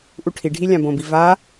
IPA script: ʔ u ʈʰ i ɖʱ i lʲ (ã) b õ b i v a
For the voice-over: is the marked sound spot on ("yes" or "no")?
yes